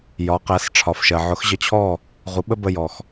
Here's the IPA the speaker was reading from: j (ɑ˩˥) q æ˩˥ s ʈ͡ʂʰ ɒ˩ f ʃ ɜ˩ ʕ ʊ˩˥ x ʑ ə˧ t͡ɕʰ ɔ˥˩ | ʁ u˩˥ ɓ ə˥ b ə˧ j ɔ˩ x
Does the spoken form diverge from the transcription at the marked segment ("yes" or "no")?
yes